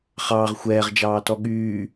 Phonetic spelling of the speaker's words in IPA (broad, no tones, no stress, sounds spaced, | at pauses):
χ ɑː ʁ xʷ ɛː ʁ d͡ʒ ɑː t ɔ ɠ yː